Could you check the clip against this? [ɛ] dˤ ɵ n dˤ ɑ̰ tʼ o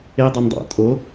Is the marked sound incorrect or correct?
incorrect